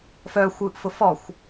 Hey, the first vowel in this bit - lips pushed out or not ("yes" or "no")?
yes